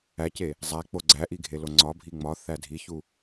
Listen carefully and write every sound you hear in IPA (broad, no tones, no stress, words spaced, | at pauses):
æce | zˤæ k͡poɡ͡ǀæʔi ɡʱeloŋ͡ǀɒbʱi ŋ͡mɒ θædʱiçu